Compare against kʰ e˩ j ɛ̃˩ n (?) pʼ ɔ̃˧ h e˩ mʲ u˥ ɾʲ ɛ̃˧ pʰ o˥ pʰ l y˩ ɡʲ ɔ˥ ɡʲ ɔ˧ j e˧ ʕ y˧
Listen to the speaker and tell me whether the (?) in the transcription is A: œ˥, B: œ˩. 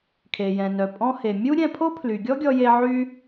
B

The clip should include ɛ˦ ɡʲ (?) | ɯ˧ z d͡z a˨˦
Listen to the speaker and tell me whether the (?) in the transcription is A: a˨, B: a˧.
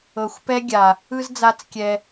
A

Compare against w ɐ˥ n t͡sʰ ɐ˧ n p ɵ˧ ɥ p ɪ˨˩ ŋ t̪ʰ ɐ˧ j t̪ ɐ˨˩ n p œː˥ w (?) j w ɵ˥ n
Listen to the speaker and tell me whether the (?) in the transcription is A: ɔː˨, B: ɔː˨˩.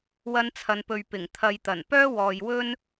A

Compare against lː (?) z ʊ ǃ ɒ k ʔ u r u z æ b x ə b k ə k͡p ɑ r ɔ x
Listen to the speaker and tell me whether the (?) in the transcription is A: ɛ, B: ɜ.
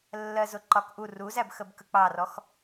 B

